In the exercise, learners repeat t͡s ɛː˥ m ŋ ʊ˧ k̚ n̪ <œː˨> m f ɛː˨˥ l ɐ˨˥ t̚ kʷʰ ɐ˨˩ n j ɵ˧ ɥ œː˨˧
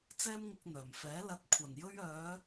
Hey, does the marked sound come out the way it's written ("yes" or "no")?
no